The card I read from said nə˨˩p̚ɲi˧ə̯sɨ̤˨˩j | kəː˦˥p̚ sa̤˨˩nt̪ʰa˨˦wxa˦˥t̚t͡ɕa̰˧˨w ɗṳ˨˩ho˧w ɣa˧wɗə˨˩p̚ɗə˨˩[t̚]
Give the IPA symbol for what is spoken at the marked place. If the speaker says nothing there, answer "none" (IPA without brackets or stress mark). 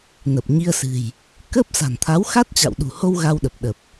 p̚